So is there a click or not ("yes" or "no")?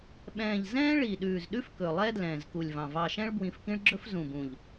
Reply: yes